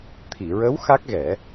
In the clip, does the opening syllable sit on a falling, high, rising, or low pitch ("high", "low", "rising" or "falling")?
low